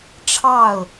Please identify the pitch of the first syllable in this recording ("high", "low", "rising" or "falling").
falling